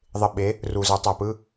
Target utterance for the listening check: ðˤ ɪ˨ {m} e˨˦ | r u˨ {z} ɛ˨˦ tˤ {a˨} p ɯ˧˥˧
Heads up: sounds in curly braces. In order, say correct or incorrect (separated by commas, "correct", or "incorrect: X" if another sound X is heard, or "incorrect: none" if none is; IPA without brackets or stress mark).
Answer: incorrect: ɓ, correct, correct